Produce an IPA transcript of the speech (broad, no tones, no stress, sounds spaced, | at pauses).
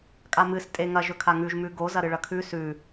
kʼ a m ɨ s tʼ e ŋ ɐ ʒ ɵ kʰ a ŋ ʉ ʒ m ʉ ɡ o z ɐ ɾ ɨ ɭ ɐ kʰ ʉ s ʉ